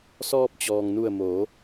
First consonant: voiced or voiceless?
voiceless